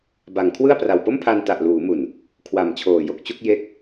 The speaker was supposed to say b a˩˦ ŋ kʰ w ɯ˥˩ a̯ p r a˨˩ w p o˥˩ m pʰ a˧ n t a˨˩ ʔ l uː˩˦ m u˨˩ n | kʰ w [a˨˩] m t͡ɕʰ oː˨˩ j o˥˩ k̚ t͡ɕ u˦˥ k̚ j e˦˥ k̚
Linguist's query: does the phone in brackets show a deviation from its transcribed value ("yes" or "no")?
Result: no